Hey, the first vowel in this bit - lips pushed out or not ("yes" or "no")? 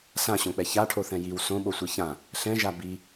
no